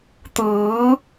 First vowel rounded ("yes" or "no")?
no